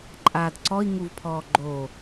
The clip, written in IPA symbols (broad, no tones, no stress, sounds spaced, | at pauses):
ǃʼ aː d ǀ ɔ i̯ ŋ u v pʰ ɔː ɡ͡ǃ o